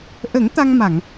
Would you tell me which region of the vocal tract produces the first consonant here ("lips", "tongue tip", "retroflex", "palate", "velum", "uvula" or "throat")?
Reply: throat